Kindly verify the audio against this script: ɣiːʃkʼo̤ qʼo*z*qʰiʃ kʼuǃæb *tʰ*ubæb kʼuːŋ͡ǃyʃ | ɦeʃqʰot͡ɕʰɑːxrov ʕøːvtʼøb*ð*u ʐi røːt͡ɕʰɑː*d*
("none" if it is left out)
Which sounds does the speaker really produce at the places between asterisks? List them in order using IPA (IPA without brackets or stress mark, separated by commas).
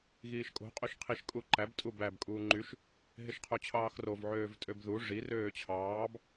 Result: ʃ, tʼ, ð, b